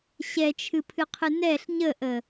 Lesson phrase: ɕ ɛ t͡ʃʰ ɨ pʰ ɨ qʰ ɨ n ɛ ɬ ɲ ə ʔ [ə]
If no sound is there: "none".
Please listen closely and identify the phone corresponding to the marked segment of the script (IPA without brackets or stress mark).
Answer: ə